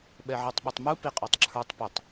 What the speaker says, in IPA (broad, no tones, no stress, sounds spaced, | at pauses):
ɓ ɛ ʕ i tˤ ɓ ʌ tˤ m u p i qʼ ɔ tˤ ǁʰ ə˞ tˤ p ʊ tˤ